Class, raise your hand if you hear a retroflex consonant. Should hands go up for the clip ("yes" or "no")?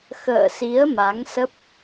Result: no